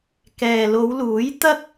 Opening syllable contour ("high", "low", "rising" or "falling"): low